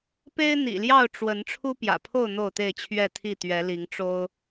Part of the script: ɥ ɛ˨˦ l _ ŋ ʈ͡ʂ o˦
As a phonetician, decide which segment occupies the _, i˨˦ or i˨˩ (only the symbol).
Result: i˨˦